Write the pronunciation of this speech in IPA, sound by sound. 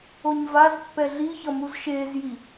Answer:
o ɲ v a z pː ɛ ɮ i ç ʌ m u z ʃ eː z j i

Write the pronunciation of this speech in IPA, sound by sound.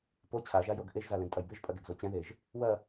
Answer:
p o t͡ɕʰ a ʒ a j o ɡ ʔ e ʒ z a l ɛ̃ ɡ tʼ ɐ j b e ʒ pʼ ɐ ɡ ɛ ɡ z o t͡ɕ ɛ̃ ð e ʒ | w ɐ

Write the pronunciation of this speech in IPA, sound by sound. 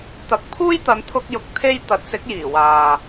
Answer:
t̪ ɐ˨˥ k̚ pʰ uː˥ j t̪ ɐ˨˧ n t̪ʰ ʊ˧ k̚ j ʊ˨ k̚ t̪ʰ e˥ j t̪ ɐ˨˥ t̚ s ɪ˨˥ k̚ j iː˨˩ w aː˨

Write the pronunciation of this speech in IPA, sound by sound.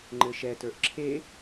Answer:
ŋ͡ǃ ɘ ʃ ɛ t ə˞ ʔ ǁʰ e

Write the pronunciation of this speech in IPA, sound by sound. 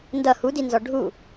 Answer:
n d ʌ h u d i n z ɔ ɖʱ u

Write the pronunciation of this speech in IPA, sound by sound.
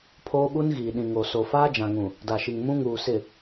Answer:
pʰ oː˦ ɓ u˦ n ɣ iː˨ ɗ ĩ˨ ŋ o˨ s o˨ f aː˦ d͡ʒ ã˨ ŋ ũ˨ | d a˨ ʃ i˨ ŋ m ũ˦ ŋ uː˨ s ɪ˨

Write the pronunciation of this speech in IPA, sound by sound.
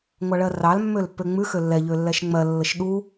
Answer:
ŋʷ ɑ ɭ ɜ r ɑ l mː ø l pː ø ŋ͡m ʉ x ø lː ɛ ʎ ø lː ɛ ʃ ŋ͡m ɜ lː ə ʃ ɗ u

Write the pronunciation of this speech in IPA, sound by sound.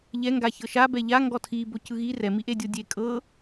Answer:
ʎ ɛ ŋ ɡ a ç ɤ ʃ a b ɛ ʎ a ŋ ɡ ɔ tʰ i b o c ɯ ɣ i r ɛ m i ʔ e dʲ o dʲ e kʼ ɤ

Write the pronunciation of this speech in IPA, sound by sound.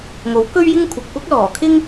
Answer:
ŋ o˨˥ w k ɵ˥ ɥ j ɪ˥ ŋ kʷʰ ɐ˨ k̚ p ʊ˥ k̚ l ɔː˨˩ kʰ ɪ˥ ŋ

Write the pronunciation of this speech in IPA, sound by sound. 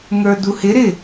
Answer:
ŋ ə˞ d u h ɪ ɾ ɪ

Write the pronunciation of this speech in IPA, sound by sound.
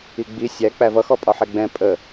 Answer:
i ɡ͡b i sʲ æ k͡p æ v ʌ x ɔ pʼ ɒ ħ ɛ ɡ͡b ɛ̃ pʼ ə

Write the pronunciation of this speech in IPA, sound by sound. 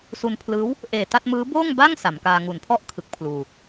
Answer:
s u˧ n pʰ l ɯː˦˥ w | ʔ eː˨˩ t a˥˩ t̚ m ɯː˦˥ b oː˥˩ ŋ b a˥˩ ŋ s a˩˦ m k aː˧ ŋ u˩˦ n pʰ ɔ˥˩ ʔ kʰ ɯ˦˥ k̚ pʰ l uː˧

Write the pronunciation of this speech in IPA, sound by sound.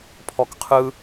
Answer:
pʰ ɔ k qʰ ɯ

